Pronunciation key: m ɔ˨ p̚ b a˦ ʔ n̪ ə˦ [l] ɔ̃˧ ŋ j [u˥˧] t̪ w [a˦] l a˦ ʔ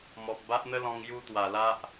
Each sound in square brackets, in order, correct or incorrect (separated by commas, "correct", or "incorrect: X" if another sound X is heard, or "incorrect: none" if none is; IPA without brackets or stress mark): correct, correct, incorrect: a˨˩